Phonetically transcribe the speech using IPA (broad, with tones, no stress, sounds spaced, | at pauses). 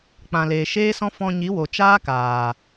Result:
k͡p ã˨ l eː˨ ʃ eː˦ s ɔ̃˦ f ɔ̃˧ ɲ i˨˦ w o˨ t͡ʃ aː˦ k aː˨